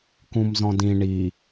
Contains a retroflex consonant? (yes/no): yes